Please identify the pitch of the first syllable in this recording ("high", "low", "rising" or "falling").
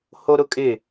high